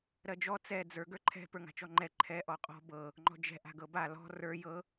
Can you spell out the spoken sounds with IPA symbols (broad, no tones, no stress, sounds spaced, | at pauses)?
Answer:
ɾ ɜ d͡ʒ ɔ t͡s ɛ d͡z ə˞ ɡ ə˞ ǃʰ ɛ̤ p ə˞ ŋ a̤ t͡ʃ ɔ ŋ͡ǃ ɛ ǃʰ ɛ ʔ ɔ qʼ ɔ̤ b ɤ | ŋ͡ǃ ɔ̤ d͡ʒ ɛ̤ ʔ a̤ ɡ ɤ b a l ɔ̤ r ə˞ j ɤ